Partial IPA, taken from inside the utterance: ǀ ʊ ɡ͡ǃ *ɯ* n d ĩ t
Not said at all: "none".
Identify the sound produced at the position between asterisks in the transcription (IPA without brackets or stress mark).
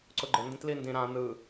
ə